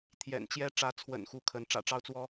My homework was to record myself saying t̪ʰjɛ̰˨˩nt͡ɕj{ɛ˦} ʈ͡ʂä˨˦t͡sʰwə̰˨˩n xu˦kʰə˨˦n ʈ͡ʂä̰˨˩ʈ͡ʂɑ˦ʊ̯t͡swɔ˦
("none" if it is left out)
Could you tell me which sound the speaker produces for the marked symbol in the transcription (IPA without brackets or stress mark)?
ɛ˦